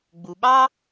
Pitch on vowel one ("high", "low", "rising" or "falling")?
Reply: low